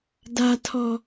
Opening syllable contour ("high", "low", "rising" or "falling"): low